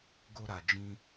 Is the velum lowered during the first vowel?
no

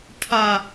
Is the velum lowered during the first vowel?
no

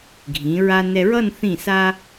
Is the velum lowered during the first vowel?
yes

